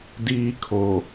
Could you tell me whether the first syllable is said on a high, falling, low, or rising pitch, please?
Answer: high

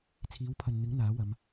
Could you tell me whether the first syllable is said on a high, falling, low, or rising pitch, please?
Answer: rising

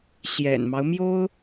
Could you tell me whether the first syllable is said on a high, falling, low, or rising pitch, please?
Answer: low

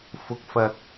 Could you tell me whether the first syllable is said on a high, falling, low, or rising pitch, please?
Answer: low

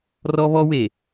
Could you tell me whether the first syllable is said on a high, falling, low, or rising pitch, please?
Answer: high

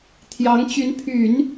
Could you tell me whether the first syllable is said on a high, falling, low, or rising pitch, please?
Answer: rising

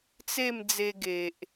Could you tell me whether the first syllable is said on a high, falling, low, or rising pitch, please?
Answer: falling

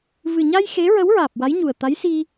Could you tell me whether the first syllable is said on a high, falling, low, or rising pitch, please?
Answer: low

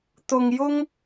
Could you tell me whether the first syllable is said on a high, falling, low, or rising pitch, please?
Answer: low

